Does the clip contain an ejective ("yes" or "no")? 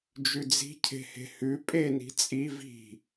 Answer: yes